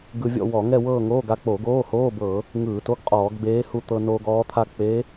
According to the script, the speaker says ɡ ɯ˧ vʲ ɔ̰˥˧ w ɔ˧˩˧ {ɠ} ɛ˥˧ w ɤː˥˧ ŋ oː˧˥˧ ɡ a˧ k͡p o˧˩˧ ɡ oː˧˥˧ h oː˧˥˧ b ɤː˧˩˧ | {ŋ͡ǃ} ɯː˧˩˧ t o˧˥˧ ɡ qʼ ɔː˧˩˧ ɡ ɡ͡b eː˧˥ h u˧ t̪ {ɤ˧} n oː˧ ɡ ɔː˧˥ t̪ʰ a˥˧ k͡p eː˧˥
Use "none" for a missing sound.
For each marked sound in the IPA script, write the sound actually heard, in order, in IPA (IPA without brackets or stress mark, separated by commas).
ŋ, ŋ, ɤ˧